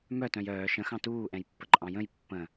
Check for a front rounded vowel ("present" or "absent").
present